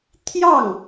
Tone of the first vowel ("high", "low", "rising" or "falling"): falling